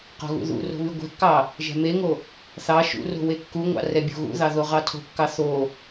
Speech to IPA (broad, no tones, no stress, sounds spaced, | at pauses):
q o̤ ɣ ṵ ð ṵ r o̤ β y ɡʷ ɛ̤ kː ɑ | ʒ ɛ̤ m e ŋ o | θ ɑ ʃ ṵ r o̤ w e kː u ŋʷ ɑ̰ r ɛ bʲ o̤ ɣ ṵ ð ɑ ð o ʁ ɑ tʰ o̤ kː ɑ θ o